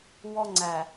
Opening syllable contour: high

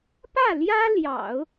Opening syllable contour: falling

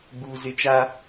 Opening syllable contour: high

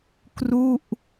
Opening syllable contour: falling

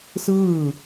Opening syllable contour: falling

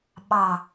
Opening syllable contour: low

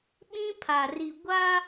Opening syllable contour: high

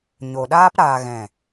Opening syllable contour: low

